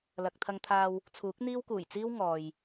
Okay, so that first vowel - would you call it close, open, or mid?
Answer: open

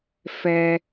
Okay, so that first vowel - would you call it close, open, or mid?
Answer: mid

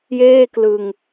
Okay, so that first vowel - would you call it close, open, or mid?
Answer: mid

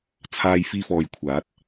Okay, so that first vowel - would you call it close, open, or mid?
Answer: open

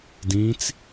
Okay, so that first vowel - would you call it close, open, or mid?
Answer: close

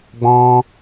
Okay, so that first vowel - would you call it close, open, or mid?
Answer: mid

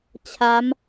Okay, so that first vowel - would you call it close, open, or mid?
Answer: open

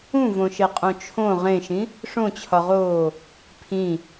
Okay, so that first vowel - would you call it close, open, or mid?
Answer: close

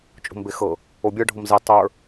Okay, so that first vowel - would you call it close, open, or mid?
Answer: mid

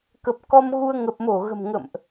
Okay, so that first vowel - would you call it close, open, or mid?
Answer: mid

